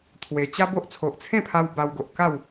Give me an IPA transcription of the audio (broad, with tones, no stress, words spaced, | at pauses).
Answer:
t̪ʰwe˨˩t͡ɕa˦ bo˦ʔ t͡sʰo˨ʔt͡sʰẽ˥˧pʰa˧w ba˧wɡo˨ʔka˥˧w